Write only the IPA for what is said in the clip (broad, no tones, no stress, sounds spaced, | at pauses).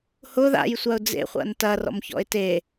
h ʊ ð a̰ j sʷ a ʊ̯ d͡z ḛ χʷ a̰ n t ɐ r ɔ̰ m ç ɔ̰ ɪ̯ t e